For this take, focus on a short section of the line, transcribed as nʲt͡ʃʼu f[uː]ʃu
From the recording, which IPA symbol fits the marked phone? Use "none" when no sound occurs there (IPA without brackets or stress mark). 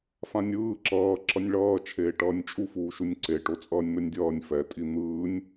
uː